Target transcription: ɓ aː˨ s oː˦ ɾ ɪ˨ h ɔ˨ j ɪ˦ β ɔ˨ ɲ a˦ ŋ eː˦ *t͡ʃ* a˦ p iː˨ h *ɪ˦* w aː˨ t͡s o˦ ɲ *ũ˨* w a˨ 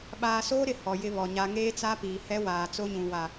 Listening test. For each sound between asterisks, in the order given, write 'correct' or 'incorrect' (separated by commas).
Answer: incorrect, incorrect, correct